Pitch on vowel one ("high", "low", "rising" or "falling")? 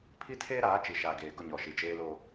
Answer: high